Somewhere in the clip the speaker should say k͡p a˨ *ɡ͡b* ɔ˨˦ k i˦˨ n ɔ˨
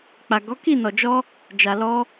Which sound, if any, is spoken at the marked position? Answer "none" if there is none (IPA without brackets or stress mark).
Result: ɡ